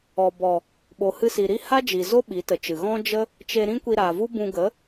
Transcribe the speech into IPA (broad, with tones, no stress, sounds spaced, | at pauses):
ɔ˨ b ɔ˨ | ɓ o˨ h ɨ˧ s i˨ ɾ i˧ h a˦ d͡ʒ i˨ z o˦ ɓ i˨˦ t ə˨ t͡ʃ ɨ˨ ɣ ɔ̃˦ d͡ʒ ə˦ | t͡ʃ e˧ ɾ ĩ˦ kʷ i˧ ɾ a˨ v u˦ b ũ˧ ɡ ə˨˦